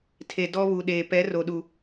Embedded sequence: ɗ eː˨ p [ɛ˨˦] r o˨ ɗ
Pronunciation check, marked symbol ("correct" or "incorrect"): correct